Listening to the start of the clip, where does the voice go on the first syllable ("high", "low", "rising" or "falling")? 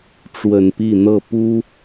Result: low